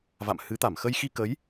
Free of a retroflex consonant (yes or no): yes